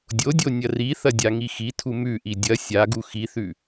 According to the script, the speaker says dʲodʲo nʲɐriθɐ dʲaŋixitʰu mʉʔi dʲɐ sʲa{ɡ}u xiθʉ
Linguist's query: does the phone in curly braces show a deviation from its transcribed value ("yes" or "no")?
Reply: no